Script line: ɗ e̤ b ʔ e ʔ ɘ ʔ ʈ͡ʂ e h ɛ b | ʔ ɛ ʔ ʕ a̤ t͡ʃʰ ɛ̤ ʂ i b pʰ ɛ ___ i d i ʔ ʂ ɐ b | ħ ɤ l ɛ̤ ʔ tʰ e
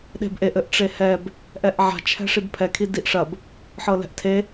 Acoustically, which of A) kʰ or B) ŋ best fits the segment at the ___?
A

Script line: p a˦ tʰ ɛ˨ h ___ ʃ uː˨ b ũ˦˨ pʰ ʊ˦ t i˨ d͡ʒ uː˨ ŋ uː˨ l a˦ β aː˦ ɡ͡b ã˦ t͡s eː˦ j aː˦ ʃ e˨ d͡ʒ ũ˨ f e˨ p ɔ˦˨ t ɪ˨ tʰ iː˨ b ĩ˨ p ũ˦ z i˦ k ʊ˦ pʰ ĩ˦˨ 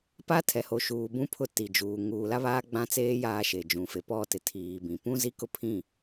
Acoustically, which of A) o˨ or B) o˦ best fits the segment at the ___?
A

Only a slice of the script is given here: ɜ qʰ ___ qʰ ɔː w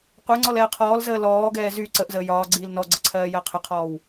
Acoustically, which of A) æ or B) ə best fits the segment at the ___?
B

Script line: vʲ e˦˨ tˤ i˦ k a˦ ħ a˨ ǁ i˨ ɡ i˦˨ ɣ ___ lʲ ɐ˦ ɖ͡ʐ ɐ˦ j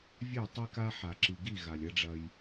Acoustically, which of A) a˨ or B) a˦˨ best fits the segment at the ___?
A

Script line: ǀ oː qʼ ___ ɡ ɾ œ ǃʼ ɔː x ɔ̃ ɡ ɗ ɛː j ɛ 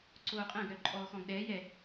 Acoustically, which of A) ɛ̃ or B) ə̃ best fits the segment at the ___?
A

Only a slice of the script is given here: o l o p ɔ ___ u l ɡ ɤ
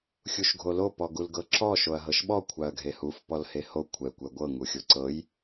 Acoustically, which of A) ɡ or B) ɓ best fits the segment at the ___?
A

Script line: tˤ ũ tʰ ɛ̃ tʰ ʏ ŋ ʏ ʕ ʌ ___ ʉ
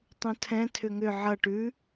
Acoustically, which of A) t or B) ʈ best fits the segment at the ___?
B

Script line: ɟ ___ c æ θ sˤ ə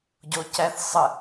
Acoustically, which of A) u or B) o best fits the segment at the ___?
B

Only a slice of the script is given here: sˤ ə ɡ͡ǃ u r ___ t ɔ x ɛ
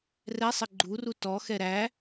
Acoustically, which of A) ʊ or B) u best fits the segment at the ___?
B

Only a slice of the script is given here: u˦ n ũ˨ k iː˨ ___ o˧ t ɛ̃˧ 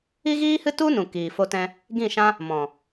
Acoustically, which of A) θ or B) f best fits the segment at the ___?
B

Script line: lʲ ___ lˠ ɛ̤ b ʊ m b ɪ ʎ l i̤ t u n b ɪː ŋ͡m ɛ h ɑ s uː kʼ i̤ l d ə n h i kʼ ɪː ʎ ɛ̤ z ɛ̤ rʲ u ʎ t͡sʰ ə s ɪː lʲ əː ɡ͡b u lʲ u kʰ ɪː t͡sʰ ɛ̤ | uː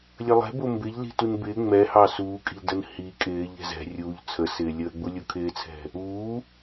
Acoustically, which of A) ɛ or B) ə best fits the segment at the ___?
B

